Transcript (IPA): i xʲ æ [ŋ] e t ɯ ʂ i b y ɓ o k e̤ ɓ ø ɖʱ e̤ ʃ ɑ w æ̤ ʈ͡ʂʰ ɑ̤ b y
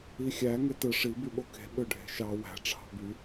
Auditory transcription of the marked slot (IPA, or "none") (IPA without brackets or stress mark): ŋ